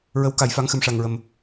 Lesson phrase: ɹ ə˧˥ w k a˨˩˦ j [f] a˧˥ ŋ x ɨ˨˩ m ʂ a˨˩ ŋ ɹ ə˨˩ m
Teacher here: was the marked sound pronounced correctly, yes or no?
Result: yes